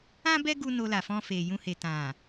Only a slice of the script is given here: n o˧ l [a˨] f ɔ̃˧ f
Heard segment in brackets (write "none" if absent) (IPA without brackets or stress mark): a˨